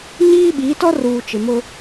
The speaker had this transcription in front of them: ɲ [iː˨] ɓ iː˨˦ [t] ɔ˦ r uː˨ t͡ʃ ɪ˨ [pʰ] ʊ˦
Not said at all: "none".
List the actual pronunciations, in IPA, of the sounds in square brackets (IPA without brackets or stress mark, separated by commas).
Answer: iː˦, t, m